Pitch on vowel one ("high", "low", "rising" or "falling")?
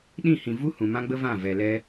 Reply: falling